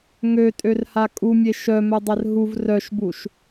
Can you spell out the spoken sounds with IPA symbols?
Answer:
ŋøtʼørha kʼumʲe ʃœmœdˤɛr ɦuv rœʃbuʃ

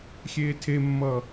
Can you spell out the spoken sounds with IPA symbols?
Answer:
xʲeːtʰemːʌː

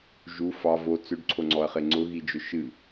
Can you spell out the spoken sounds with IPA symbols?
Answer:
ʒu fɑ vo t͡sʏɖǀʰoŋ͡ǀɔɐ̯χe ŋ͡ǀʊɣid͡ʒʊ ʃɨ

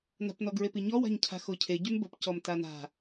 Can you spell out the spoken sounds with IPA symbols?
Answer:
na̤pnɔɡɹepi ɲɔwa̤ɲcʰa̤ xocʰe ɟymbəpcɔm tana̤

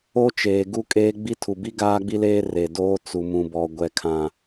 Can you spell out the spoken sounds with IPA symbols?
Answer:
o˦t͡ʃeː˨ ɡu˦kʼeː˦ ɡ͡bi˦tʰu˨bi˦ ɡaː˦ɡ͡bi˦leː˦ re˨doː˦ t͡su˨mũ˨bɔ˨ ɡʷɛ˨kʰã˨

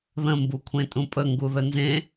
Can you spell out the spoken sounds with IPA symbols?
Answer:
ðə̃ mbukʷʰẽtʼũpʼə ŋɡuðənzẽ

